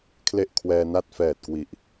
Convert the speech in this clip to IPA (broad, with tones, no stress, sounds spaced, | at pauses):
kʰ l e˥˩ ʔ kʰ w ɛː˧ n a˥˩ t̚ f ɛː˨˩ t̚ k w i˨˩ ʔ